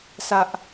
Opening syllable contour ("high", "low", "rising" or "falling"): low